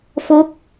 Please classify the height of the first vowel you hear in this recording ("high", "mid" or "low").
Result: mid